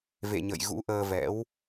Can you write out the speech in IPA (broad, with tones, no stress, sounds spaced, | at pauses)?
v ḛ˧˨ ɲ ə̰˧˨ j ɣ ṵ˧˥ ʔ əː˧ v ɛ̰˧˥ w